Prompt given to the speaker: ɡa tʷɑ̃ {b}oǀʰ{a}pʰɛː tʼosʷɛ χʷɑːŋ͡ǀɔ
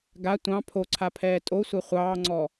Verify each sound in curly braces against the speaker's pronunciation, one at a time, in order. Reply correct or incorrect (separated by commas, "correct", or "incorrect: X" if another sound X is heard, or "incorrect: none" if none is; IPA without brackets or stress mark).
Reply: incorrect: pʰ, correct